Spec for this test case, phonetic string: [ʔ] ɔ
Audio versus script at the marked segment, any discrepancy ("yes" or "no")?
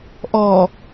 no